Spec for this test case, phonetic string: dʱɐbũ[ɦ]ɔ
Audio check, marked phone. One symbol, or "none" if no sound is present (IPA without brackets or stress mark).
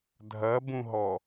ɦ